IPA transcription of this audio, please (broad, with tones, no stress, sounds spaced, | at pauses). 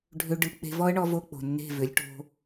ɖʱ ʏ˧ ɖ ɯ˧ k͡p e̤˧ v ɔ˦ ə̯ ɳ ɔ˧ v o˧ k͡p o̤˨ nː e̤˦˨ v ʏ˨˦ lʲ ʈ o̤˦